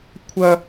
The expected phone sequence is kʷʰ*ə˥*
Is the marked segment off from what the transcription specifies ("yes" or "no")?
yes